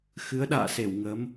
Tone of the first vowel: rising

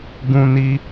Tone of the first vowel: high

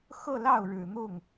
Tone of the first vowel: falling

